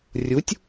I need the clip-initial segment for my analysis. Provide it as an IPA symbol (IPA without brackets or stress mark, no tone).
rʲ